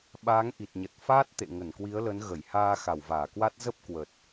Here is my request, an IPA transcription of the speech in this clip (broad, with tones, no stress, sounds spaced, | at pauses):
ɓ aː˨˦ ŋ ʔ i˨˩ t̚ ɲ ə˨˩ t̚ f aː˦˥ t̚ t̪ ḛ˧˨ ŋ ə˧˩ n k w i˨˦ ə̯ l ə˨˦ n ɣ ə˧˩ j h aː˧ x a˧˩ w v aː˧˩ k w a˦˥ t̚ z ə˦˥ p̚ k w ə˨˩ t̚